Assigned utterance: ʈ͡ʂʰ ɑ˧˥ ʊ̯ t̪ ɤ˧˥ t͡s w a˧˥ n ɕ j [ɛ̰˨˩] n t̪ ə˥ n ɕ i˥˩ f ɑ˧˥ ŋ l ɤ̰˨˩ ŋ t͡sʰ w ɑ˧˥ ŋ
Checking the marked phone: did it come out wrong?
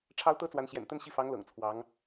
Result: no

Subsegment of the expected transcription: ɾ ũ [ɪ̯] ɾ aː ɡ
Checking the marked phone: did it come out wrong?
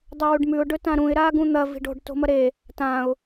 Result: no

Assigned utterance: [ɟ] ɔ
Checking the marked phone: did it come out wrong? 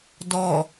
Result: yes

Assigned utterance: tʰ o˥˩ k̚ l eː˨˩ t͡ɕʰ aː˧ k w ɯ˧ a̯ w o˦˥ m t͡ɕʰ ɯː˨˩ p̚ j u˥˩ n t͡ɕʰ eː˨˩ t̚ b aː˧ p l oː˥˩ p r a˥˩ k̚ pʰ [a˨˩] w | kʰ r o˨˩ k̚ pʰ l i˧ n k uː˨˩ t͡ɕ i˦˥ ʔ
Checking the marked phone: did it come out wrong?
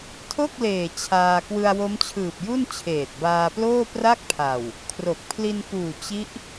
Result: no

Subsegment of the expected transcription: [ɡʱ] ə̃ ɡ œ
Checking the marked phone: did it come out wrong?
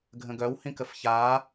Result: no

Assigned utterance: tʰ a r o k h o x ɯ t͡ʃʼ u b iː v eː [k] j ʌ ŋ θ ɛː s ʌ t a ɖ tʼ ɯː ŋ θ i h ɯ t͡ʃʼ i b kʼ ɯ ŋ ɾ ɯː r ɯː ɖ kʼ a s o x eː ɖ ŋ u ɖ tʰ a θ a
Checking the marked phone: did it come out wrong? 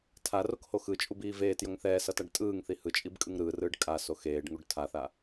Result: yes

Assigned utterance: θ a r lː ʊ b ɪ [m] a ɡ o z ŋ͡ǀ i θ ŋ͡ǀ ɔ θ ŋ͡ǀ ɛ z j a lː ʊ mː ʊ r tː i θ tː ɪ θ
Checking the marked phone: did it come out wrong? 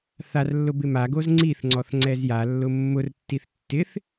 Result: no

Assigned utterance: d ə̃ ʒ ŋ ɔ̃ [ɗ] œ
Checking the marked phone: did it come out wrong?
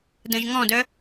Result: yes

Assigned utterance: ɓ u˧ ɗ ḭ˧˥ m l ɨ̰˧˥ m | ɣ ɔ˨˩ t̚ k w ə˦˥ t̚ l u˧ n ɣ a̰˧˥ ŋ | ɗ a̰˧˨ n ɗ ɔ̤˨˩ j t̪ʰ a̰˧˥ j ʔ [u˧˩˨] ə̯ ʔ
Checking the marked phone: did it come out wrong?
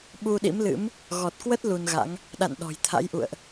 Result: yes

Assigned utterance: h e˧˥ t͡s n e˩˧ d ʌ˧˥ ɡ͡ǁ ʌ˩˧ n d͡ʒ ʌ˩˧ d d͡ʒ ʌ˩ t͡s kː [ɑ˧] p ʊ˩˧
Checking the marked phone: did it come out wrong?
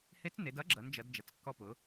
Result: yes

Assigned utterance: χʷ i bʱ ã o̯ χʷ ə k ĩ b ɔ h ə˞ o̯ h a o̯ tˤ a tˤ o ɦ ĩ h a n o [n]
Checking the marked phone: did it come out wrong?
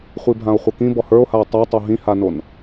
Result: no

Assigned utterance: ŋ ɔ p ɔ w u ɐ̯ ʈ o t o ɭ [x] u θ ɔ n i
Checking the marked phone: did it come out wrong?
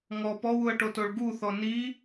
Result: yes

